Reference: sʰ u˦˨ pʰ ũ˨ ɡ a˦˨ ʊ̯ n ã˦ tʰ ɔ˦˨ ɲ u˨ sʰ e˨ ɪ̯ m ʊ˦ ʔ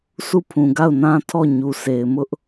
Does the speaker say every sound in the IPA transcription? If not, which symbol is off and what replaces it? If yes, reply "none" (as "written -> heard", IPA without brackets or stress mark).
none